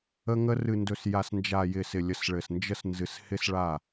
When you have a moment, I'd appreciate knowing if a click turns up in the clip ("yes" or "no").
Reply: no